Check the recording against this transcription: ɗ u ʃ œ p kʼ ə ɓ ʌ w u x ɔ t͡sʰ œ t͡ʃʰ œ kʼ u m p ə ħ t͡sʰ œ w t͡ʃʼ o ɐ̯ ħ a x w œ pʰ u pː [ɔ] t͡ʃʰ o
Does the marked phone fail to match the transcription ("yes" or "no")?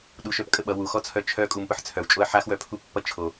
yes